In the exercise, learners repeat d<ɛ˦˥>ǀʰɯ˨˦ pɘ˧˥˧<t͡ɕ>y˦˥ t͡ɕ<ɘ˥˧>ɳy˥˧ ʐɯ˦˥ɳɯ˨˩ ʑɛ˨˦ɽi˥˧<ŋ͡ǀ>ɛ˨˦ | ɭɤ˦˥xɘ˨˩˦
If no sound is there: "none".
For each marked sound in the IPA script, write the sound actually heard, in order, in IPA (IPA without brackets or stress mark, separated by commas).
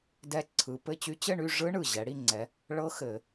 ɛ˦˥, t͡ɕ, ɘ˥˧, ŋ͡ǀ